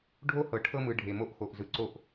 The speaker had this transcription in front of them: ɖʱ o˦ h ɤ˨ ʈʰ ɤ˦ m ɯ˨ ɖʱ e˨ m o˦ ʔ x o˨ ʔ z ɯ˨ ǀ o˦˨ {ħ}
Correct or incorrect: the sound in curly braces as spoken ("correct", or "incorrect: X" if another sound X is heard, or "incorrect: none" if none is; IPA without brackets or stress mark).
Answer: incorrect: ʔ